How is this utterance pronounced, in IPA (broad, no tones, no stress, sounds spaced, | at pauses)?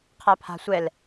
qʰ a pʰ a̤ sʷ ɛ l